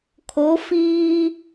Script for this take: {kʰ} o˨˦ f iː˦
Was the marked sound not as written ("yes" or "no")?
no